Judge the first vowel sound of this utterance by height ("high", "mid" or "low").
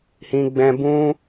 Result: high